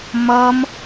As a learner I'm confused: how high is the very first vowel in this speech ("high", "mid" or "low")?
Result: mid